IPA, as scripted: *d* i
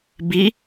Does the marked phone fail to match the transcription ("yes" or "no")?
yes